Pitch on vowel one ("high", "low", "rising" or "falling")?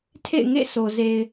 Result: falling